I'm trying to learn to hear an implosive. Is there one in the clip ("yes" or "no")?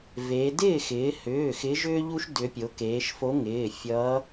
no